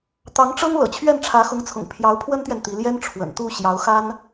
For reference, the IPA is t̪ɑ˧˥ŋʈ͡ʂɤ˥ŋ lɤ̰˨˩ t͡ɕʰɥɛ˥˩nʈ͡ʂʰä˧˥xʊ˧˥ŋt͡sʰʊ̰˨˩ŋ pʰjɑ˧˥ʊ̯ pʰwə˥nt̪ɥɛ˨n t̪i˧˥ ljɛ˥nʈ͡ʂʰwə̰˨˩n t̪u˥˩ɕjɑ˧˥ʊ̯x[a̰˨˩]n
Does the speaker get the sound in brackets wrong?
yes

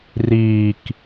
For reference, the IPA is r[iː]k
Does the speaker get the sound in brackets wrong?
no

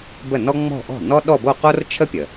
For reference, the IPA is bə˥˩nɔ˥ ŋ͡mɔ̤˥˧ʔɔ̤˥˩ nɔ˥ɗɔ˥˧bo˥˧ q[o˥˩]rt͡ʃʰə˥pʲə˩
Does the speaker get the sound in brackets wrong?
yes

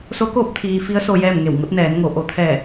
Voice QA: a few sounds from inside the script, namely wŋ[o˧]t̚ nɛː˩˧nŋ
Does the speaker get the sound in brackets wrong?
yes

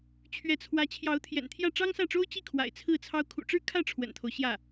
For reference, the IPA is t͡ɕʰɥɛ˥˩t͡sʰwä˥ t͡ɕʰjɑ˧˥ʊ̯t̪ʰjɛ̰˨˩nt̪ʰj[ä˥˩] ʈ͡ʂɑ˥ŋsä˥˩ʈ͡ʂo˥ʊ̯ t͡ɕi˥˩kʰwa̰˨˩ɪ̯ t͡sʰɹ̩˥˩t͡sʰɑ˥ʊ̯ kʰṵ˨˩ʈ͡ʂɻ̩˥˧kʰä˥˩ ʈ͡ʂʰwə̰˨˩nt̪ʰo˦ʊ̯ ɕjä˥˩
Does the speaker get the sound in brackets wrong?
no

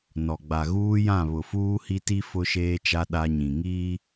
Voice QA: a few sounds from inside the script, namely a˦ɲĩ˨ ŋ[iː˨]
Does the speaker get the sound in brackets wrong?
yes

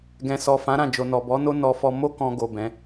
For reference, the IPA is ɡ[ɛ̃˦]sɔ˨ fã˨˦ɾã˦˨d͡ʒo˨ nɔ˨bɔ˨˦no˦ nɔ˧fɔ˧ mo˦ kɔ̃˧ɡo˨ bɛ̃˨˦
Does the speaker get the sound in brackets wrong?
yes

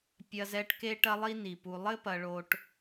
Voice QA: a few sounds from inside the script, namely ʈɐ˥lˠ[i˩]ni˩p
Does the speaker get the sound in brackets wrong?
yes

